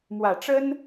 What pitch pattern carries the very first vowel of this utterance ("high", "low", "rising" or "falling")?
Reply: low